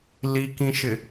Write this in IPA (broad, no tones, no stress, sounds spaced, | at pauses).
l i k ĩ ʃ ɪ